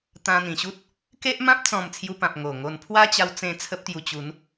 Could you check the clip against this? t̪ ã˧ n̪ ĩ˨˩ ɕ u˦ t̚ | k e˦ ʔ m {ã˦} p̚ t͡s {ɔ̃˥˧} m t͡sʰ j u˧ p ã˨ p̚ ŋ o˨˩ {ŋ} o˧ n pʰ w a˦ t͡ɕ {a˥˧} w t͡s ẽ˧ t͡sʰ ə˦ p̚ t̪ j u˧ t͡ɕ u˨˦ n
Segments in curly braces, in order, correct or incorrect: correct, correct, correct, incorrect: a˧

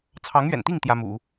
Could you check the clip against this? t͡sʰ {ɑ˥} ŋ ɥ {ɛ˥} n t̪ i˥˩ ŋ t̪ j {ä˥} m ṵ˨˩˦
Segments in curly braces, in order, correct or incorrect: incorrect: ɑ˧˥, incorrect: ɛ̰˨˩, correct

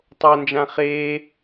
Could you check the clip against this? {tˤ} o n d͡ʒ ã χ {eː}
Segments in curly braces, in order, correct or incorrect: correct, correct

